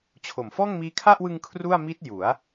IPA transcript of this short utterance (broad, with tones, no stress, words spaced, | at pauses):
t͡ɕʰo˨˩mfɔː˥˩ŋmiː˦˥ kʰa˥˩ʔwɯ˧ŋ kʰru˥˩a̯ miː˦˥t̚ ju˩˦a̯